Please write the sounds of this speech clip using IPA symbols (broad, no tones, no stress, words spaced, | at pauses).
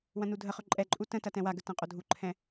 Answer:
wɐ̃nudʱəχɵ ǃʼɛǃʼu tə̃tɐ tɛ̃waɡə tɐ̃qʼodʱuǃʰɛ̃